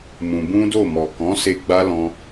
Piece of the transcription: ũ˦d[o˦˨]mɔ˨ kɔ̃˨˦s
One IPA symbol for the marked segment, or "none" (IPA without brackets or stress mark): o˦˨